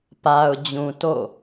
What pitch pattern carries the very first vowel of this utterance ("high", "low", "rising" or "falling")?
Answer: low